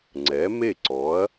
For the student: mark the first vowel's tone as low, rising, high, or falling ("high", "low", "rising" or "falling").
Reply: rising